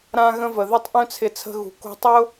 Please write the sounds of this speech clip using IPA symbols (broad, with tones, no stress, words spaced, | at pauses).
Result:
ɾã˧ɣə̃˧və˨ ðy˧tˤʔœ̃˦t͡sʰɪ˨˦t͡sʰə̤˧ ɣṳ˨ko̤˦ tˤʊ˦